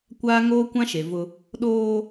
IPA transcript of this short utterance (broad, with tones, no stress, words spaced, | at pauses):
kʷaː˦ ŋoː˦kʷã˦ ʃe˨vʊ˦ | ɗoː˦